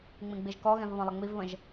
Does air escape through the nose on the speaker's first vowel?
yes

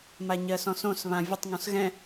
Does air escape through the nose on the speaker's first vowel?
no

